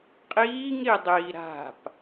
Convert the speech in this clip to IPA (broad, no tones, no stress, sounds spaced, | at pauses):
qʼ iː ŋ ɾ i dˤ iː ɾ a̤ p